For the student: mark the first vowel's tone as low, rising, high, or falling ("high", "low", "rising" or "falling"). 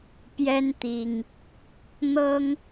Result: high